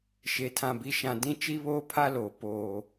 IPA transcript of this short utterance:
ʃe˨ tʰã˨bi˨ʃã˨ dĩ˦ t͡ʃi˦βoː˦pʰa˦loː˨ poː˨

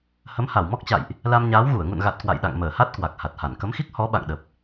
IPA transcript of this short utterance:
hə˨˦mha˧˩wmɔ˦˥k̚t͡ɕa̰˧˨jʔ | la˧mɲaː˨˦wɣu˧˩ə̯ ŋṵ˧˨nɣa˨˩t̚ kwa̰˧˨jɗa̰˧˨ŋ məː˧˩ha˦˥t̚ kwa˨˩k̚ha˨˩t̚ha˧˩n kə˨˦mxi˦˥k̚ hɔ˨˦ɓa̰˧˨ŋɗə˨˩p̚

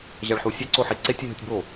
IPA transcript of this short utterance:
ʑaɭħusʲɛ ǀoħeǀe tʲeɦɯtʲbo

